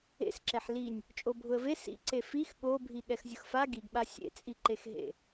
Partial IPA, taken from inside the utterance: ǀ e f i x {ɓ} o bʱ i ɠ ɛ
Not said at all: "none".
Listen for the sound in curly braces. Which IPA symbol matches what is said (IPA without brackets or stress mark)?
ɠ